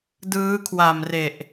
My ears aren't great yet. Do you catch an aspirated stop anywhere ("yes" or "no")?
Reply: yes